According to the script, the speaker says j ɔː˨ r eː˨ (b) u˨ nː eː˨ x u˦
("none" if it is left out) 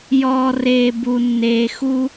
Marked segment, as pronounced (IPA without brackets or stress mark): b